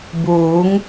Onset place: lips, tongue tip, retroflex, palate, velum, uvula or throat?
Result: lips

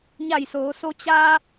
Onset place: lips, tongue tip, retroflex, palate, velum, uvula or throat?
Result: palate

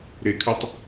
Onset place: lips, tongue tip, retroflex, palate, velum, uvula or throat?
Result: tongue tip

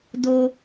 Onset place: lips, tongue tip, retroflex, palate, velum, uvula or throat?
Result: tongue tip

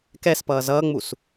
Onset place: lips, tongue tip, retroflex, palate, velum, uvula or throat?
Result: velum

